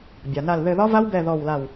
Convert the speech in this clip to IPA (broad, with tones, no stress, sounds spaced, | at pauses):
bʲ a˩ n a˧˩ l ð ɘ˧˩ ð ɒ˦˥ v a˦˥ w b ɛ˧˩ ð ɔ˧˩ w l a˧˩ w